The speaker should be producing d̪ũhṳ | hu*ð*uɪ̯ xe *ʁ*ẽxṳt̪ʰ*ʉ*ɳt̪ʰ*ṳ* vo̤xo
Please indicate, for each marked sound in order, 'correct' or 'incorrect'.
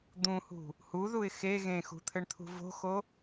correct, incorrect, incorrect, correct

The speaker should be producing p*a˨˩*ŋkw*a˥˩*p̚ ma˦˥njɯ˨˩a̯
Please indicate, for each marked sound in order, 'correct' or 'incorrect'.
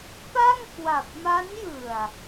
incorrect, incorrect

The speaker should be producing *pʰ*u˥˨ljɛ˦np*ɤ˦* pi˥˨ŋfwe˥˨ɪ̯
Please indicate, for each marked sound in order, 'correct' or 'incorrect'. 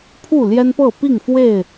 correct, incorrect

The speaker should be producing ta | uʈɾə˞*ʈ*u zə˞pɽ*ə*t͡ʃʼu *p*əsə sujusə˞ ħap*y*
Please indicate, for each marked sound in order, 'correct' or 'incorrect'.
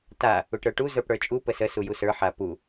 correct, incorrect, correct, incorrect

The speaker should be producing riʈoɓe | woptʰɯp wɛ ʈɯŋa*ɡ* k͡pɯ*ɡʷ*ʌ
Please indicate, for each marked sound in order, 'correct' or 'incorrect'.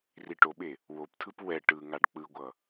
incorrect, correct

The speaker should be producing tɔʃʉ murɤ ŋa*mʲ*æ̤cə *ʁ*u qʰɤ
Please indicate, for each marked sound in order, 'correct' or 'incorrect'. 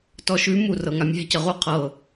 correct, correct

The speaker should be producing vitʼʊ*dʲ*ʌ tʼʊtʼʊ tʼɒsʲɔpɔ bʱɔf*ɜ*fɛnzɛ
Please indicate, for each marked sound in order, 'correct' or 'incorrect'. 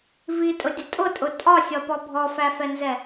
correct, incorrect

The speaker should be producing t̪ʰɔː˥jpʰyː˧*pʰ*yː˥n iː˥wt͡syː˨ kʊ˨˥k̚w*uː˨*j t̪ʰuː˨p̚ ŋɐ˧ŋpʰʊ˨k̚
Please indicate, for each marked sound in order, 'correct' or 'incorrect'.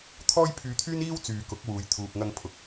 incorrect, correct

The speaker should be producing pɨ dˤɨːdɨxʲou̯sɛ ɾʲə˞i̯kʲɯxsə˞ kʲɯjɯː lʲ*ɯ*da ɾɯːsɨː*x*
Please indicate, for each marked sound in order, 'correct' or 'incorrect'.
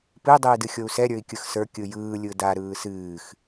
correct, correct

